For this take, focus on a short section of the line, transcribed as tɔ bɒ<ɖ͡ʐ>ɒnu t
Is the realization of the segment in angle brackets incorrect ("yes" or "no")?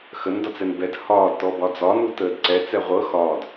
yes